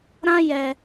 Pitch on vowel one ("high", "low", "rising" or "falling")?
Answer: high